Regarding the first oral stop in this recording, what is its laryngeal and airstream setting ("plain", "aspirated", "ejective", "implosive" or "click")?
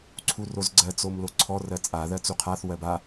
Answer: click